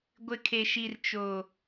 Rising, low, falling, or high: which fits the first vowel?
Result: high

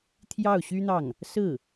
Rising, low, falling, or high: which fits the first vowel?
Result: falling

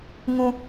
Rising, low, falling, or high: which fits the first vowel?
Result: high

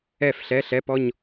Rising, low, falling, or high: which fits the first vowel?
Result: falling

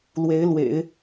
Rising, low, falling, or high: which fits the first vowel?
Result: rising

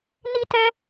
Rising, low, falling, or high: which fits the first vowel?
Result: high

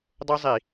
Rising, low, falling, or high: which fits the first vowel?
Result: high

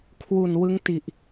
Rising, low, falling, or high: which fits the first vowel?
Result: low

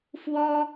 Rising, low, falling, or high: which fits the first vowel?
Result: high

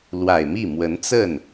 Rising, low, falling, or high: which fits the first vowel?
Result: low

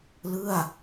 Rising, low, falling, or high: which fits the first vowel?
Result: falling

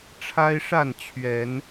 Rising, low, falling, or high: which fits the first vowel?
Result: high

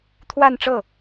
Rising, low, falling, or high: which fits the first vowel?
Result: falling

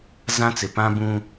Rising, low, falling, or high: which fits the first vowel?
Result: high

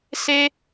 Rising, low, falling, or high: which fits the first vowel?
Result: high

